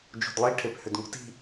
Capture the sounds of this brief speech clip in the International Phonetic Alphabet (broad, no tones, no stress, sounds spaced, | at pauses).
d͡ʒ ṳ d lˠ i ʈʰ e p h ʏ d ŋ ṳ t i̤